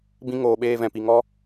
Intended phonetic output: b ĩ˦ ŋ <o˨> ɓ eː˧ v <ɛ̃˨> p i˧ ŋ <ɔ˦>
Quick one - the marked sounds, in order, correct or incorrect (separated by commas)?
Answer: incorrect, correct, correct